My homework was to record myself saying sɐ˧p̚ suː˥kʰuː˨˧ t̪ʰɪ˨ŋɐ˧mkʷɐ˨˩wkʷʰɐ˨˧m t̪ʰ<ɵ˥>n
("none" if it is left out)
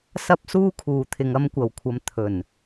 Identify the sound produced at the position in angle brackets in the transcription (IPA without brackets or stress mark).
ɵ˨˩